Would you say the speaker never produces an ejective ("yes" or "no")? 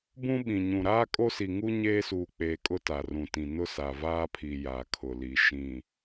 no